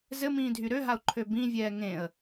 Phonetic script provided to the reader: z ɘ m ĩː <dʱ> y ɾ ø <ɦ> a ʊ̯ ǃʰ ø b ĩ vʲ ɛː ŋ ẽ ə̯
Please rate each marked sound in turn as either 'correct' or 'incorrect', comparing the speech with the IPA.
correct, correct

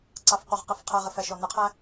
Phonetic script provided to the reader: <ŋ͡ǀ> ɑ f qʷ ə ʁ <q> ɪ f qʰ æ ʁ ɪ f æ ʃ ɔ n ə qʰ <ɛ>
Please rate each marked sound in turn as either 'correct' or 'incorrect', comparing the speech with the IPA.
incorrect, correct, incorrect

